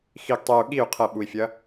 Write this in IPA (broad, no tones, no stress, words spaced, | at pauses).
xiɡ tˤeu̯ ɠiu̯ qʰɐ ɓui̯fʲɐ